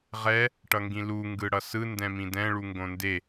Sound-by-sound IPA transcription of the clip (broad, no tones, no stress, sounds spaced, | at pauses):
ʁ ɛ | ʈ ʌ ŋ ɡ ĩ l u ŋ ɡ ɯ ɽ ʌ s ɯ n d ɛ̃ m ĩ d ɛ̃ ɭ u ŋ ɡ õ n d e